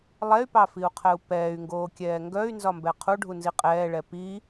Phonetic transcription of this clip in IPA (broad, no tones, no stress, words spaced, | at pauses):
lˠɛy̯pɑfiu̯qʰɛu̯ pɛːy̯ŋɡoːkʲɛː ŋɡœy̯nzɒmbɛ qʰuɖʱunzi qʼɛːɭɛ pi